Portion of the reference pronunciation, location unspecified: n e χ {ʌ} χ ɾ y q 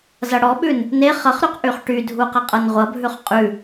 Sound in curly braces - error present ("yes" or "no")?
no